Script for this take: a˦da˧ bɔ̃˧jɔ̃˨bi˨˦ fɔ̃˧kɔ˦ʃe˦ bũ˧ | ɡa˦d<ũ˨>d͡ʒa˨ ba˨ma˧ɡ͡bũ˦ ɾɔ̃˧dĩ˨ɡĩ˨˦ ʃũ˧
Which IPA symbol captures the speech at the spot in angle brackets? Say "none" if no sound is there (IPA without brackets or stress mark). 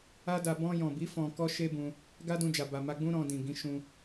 ũ˧